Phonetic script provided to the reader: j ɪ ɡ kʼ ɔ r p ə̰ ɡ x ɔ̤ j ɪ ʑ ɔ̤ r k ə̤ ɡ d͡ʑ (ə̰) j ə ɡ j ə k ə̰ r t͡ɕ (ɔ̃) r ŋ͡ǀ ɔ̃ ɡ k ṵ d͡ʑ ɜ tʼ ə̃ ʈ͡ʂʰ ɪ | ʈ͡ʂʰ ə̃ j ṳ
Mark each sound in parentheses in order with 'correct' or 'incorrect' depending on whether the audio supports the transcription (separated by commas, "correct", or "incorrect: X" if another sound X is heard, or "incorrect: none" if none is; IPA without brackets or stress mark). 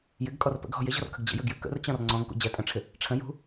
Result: correct, correct